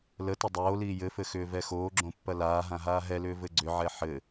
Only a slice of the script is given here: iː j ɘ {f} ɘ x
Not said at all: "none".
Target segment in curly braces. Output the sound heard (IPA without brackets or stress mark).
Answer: f